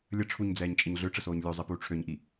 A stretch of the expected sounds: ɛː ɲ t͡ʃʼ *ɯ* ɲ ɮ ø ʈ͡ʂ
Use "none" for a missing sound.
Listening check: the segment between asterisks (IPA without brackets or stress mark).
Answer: ə